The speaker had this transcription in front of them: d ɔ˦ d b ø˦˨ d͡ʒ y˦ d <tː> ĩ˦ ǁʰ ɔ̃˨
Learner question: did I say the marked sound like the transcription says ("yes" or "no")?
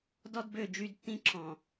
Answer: yes